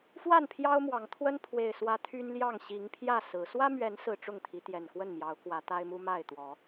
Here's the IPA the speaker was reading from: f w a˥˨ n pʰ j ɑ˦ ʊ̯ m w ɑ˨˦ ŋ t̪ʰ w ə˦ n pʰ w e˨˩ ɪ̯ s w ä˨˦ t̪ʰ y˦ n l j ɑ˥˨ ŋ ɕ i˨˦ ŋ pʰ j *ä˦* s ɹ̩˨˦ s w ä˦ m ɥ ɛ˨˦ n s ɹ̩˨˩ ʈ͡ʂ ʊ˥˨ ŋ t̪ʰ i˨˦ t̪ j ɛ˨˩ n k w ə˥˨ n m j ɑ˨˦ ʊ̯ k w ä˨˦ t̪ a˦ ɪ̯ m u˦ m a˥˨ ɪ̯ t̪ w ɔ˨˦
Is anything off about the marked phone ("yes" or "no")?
yes